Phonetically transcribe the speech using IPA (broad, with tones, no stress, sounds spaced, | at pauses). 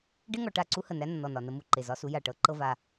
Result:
ɖ e˦ ŋ ɔ˨ ʈ a˦˨ ǀ u˦ h ə˨ n æ˦ nː ɔ˨ n ɒ˨ n ə˦ m u˨ ǃ e˨ z ɒ˦ s u˦ j a˨ ʈ ɤ˨˦ ǃ ɤ˦ v a˦